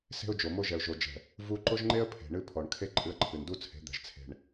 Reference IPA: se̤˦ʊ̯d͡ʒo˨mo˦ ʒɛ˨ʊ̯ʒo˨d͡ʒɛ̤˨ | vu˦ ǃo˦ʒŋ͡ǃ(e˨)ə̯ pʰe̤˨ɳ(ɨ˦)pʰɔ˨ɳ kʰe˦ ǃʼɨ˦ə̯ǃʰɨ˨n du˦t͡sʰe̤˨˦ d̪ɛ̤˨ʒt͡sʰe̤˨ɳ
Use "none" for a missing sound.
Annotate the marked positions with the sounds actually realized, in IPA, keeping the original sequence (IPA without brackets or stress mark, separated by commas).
e˦, ɨ˦